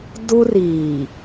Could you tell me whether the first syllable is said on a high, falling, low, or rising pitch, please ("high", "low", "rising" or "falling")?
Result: high